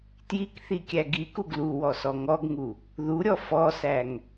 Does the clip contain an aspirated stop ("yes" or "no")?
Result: no